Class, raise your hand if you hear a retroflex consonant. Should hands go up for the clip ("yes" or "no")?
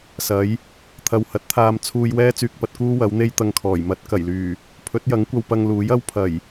no